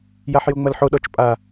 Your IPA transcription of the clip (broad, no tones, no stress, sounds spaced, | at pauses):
j a ħ j o ŋ͡m ɐ l ħ o ɗ ɔ t͡ʃ pʼ a